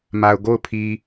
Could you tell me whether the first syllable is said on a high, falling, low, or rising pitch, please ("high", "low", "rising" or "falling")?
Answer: low